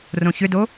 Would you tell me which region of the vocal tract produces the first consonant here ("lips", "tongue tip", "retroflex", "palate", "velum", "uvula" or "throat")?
tongue tip